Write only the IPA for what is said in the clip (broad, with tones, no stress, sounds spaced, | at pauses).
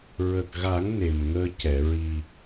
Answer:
ɹ ə˨˩ k̚ ɣ a˨˩˦ ŋ n e˨˩ m ŋ əː˧ c ɛ˨˩˨ ɹ i˨˩